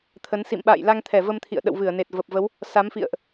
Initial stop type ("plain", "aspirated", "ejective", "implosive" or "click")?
aspirated